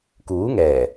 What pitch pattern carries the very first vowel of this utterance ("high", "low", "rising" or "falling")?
rising